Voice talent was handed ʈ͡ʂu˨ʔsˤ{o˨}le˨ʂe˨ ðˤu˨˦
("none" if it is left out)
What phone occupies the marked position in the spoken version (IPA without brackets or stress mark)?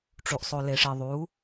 o˨